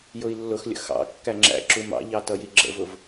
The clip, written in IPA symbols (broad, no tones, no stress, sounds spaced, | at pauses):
j ʊ i̯ lː ʊ x lʲ ə̰ x ɑ̰ kː æ ŋ͡ǁ æ̰ ǁ u m ɑ̰ ʎ ɑ t ʌ j i ɡ͡ǁ ə̰ v ʊ v